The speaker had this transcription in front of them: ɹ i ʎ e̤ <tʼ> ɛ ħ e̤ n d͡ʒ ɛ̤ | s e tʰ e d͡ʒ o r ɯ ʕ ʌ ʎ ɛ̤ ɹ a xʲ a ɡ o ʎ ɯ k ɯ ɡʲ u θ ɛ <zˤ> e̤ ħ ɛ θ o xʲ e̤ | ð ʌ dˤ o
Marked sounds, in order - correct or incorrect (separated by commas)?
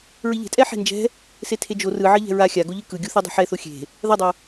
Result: correct, incorrect